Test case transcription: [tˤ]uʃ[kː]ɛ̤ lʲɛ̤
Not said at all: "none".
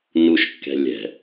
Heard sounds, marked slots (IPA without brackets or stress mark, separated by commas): n, kː